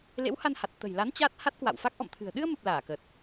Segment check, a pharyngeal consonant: absent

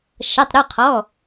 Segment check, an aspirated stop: present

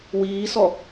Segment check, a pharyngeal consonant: absent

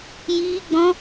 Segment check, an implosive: absent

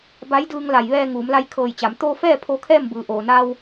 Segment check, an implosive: absent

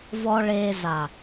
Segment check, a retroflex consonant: present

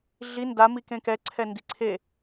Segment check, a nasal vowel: present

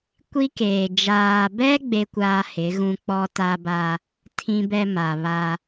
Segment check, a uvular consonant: absent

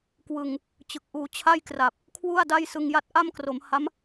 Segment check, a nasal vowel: absent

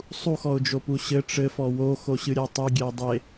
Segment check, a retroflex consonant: present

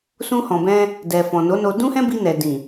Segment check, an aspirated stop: absent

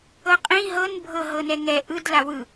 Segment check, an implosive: absent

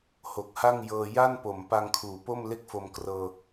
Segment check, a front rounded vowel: absent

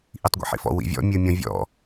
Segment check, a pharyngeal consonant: present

